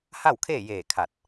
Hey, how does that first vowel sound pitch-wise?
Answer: falling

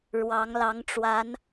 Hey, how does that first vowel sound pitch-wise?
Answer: rising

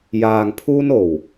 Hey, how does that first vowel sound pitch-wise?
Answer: low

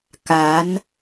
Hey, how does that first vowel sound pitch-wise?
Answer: rising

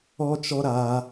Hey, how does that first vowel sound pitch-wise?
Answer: high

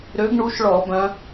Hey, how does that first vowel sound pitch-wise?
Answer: rising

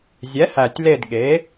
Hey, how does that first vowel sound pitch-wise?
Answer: rising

